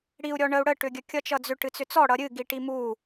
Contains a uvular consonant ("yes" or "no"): no